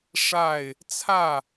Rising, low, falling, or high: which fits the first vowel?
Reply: falling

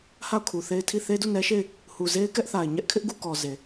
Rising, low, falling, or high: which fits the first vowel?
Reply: falling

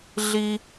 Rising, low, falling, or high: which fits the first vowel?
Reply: high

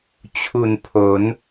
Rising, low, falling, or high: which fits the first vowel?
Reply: low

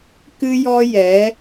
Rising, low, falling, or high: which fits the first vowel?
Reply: high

